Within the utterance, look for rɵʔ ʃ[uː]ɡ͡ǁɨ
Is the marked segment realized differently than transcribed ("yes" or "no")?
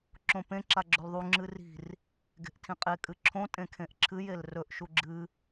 yes